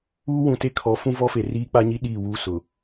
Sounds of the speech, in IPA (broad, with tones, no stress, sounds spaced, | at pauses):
uː˦ w ũ˨ t e˦ kʰ ɔ˨˦ f ũ˦ v ɔ˦ f e˨ r iː˦ k͡p a˦ ɲ i˦ ɗ iː˦˨ w uː˦ s ʊ˨